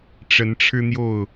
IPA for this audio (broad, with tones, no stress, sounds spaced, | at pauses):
ʈ͡ʂ ə˨˦ n ʈ͡ʂʰ ɻ̩˦ n̪ j o˥˨ ʊ̯